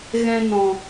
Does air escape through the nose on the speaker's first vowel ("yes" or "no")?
yes